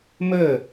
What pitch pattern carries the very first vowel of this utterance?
falling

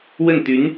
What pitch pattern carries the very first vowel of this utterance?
falling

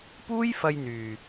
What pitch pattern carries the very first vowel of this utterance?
high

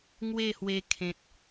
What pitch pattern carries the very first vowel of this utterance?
falling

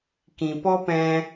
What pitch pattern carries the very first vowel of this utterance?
low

